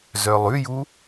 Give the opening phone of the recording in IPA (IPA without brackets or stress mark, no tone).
z